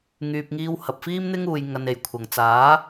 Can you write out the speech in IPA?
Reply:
ŋ yː˨ p̚ ŋ iː˧ w h ɐ˨ p̚ f iː˥ m n̪ ɪ˥ ŋ uː˨ j ŋ ɐ˨ n e˨˩ j kʷʰ ɐ˨˩ ŋ t͡s aː˨˥

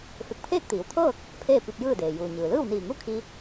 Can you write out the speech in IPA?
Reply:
f e˧˩ k̚ pʰ eː˥˨ k̚ t̪ iː˩˧ w t̪ʰ ɤː˥˨ k̚ | pʰ eː˥˨ p i˧ p̚ j ɯː˥˨ d eː˩ j uː˩ ɲ ɯː˩ l ɯː˥˨ w n iː˧˩ ŋ u˥˨ kʰ i˧

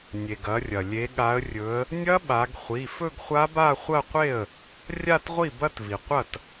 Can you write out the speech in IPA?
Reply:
nʲ e˩ ɡ ɐ˩˧ rʲ ɐ˩ lʲ e˩˧ ɠ a˩˧ ə̯ rʲ ɵ˩˧ ə̯ | nʲ ɐ˦˥ ɓ a˩˧ ɡ χʷ i˩˧˩ f ɵ˥˧ ɡ χʷ a˦˥ b a˥˧ χʷ ɐ˥˧ qʷ e˥˩ ə̯ | rʲ a˥˧ t ʁʷ i˥˩ b ɐ˥˧ t v i˩ qʷ ɐ˥˩ t

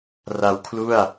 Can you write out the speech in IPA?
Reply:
r a˧ w kʰ l u˥˩ a̯

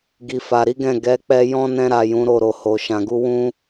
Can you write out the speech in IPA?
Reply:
ɡ i˨ f a˨ ɾ i˨˦ ɡ ɛ̃˦˨ ɡ ɛ˨˦ k͡p ɛ˧ j ɔ̃˦ n ɛ̃˧ ɾ a˨ j ũ˨˦ ɾ o˦˨ ɾ o˧ h o˨ ʃ ã˨ ɡ u˧ w ũ˦

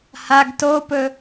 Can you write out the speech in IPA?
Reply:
h a ɡ t o p ɵ

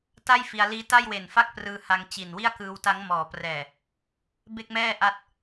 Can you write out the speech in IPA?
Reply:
t a˥˩ j f i˧ a̯ l iː˦˥ t a˥˩ j w e˨˩ n f a˥˩ k̚ p r ɯː˧ h a˧ ŋ t͡ɕ i˨˩ n w i˥˩ a̯ k ɯː˧ w t a˦˥ ŋ m ɔː˩˦ p r ɛː˨˩ | b e˥˩ k̚ m ɛː˥˩ ʔ a˦˥ t̚

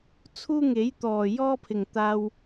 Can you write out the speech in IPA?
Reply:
t͡sʰ uː˥ ŋ e˨˥ j t̪ ɔː˨˩ j ɔː˥ pʰ ɪ˨˩ ŋ t̪ aː˧ w

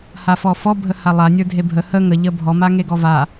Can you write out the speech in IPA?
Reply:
h a f ɔ f ɔ bʱ ə h a lˠ a nʲ ə˞ dʱ e bʱ ə h ə ŋ ə ʎ ə bʱ ɔ m a ŋ e ɡ ɔ v a

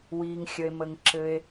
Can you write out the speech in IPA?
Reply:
w iː˩ ŋ xʲ ə˩ e̯ m ə˩ ŋ ǁ ɘ˩ e̯

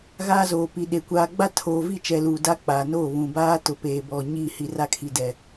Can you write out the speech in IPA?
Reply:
ɣ aː˦ z oː˨ p i˨ ɗ e˨ kʷ aː˨ ɡ͡b a˦ tʰ oː˨ v i˦˨ t͡ʃ ɛ˨ l uː˨ d a˦ k͡p aː˨ n oː˦˨ β ũ˨ b aː˦ t ʊ˨ p eː˨ b ɔ˨ ɲ i˦˨ h i˨ r a˦ kʰ i˨ d ɛ˨

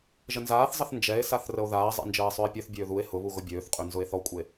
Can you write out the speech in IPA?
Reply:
ʒ ə n z aː θ zˤ ə θ n d͡ʒ ɛ e̯ s a θ r ə o̯ ð aː zˤ ɛ̰ n d͡ʒ əː e̯ sˤ ø e̯ pʲ ø θ bʲ øː ð u e̯ h ʊ β u ɣ ʊ bʲ øː θ qʼ ø n z ʊ e̯ θ ɔ kʷʼ e

